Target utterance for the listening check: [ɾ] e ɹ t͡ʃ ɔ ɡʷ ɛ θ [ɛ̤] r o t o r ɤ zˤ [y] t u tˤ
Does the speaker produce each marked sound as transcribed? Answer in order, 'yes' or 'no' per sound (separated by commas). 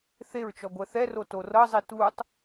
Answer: no, no, no